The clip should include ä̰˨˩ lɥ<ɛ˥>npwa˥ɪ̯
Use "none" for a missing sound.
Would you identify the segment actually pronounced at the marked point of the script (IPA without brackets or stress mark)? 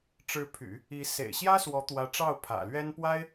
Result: ɛ˥